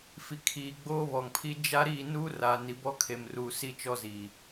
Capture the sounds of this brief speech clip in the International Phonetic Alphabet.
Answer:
fi˨kʰiː˨ ɡ͡boː˦βɔ˨ŋpʰi˦ d͡ʒa˦ ɾiː˦˨nuː˦ra˨ ni˨bɔ˦kʰe˨mruː˨ si˦t͡ʃɔ˦zi˨

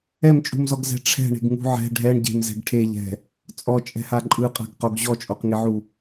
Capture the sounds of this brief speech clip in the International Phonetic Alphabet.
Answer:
ɛmt͡ʃʼṳmzɔɡzɛ̤ ʈ͡ʂʰɛ̤ɳe̤ɡŋṳ ʕɛ̤ ɖʱɛɳ ɟe̤mzɛ̤ɡ ʈʰeʎɛ̤ | t͡sʼɔt͡ʃʼɛ̤ha ǃʼɯqʼa̤ɡqoɡ ʑɔt͡ʃʼoqŋiʕu

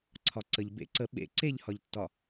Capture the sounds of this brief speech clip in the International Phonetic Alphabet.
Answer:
ǀʰɒǀəʎ bḛ ǀə ɓḛ ǀeʎhɒʎtːɒ

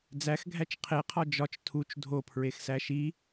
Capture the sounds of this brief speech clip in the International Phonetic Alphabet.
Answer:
d͡zæxɡʱæt͡ʃ qʰeqʰɒ d͡ʒɒt͡ʃ tʰut͡ʃ dʱopʰɹexsæ ʃi

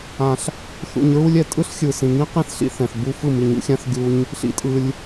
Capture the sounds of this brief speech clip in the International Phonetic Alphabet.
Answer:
ã˨ɬ | θṵ˨ɲɹu˧lʲɛ˨ tʼɯ˦ɬxʲɯ˨sĩ˨ ŋĩ˦qĩ˦θɬḭ˧ θɛ̃˨θbu˦ fɯ˦˨mi˨ɲṵ˧xʲã˦θ ɡʲu˦ɲ | ɬḭ˧tʼɯ˧lʲ

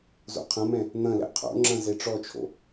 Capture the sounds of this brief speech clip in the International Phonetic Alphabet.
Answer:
zo̰qʰɐ̃mɛ̃ | n̪ɐ̃lɛ̰ qʰo̰ŋ͡ǁɐ̃ zeʈ͡ʂɔt͡ʃʰo̰

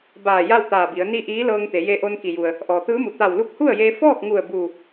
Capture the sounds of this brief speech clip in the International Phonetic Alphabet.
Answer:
baː˧˩ ja˥˨wt̪aː˧˩bi˩˧ə̯ ni˥˨ʔiː˧˥ lɤː˧ŋt̪e˩˧je˧ʔo˧n ki˩ju˩ə̯ | ʔɔː˩t̪ɯː˧˥mu˩ t̪a˧˩w lu˧˥k̚hu˥˨ə̯jeː˧ fɔː˥˨k̚ŋu˧˩ə̯ bu˧˩

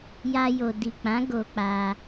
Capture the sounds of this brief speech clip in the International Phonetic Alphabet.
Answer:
ja˧jo˨ di˨k͡pã˨˦ ɡo˧k͡pa˧

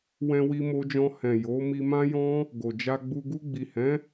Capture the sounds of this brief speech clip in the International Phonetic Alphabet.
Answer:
wɛ̃˧wi˧ mo˧d͡ʒɔ̃˧ hɛ̃˨ jo˨˦ mi˧mã˦ jɔ̃˦ | ɡo˨d͡ʒa˧ɡ͡bu˧ ɡu˧ɡ͡bi˨hɛ̃˨˦

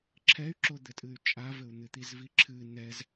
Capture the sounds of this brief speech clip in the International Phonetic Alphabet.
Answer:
ǁʰɛy̯ǁod̪ɘtʼɨy̯ t͡ʃʼavɘu̯ n̪ɨt̪izviǁʰɨ nɛz

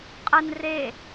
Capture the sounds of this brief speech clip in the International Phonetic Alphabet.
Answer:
qʼən re

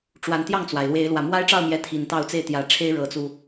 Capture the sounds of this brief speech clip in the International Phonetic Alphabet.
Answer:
ʈ͡ʂwa˨˦nt̪jɑ˥˨ŋt͡swa˩ɪ̯lwe˨˦ɪ̯ lwä˨˩mwa˦ɪ̯ʈ͡ʂɑ˥˨ʊ̯mjɛ˨˦ t̪ʰi˨˩nt̪ɑ˥˨ʊ̯ t͡se˥˨ɪ̯t̪jä˨˩ʈ͡ʂʰe˦ɪ̯ ɻɤ˨˦t͡su˧

